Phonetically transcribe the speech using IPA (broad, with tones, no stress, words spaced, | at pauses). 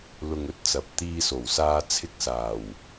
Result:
lʊ˧ŋɵ˧t̚t͡sɐ˨p̚ t̪iː˧so˨˩wsaː˧ t͡sʰɪ˧k̚saː˨˩w